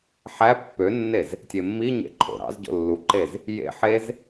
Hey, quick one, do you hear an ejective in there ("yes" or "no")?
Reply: no